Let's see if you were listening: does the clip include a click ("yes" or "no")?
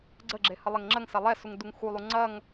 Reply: yes